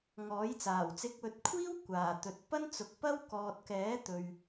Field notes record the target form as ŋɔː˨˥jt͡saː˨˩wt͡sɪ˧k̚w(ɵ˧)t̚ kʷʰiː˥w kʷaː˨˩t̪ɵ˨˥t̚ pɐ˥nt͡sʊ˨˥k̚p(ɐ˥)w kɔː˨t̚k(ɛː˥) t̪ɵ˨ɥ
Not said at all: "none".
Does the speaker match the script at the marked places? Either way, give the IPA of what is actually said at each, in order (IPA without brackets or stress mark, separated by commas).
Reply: ɵ˧, ɐ˥, ɛː˨˥